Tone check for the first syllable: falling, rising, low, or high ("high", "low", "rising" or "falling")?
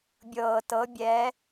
low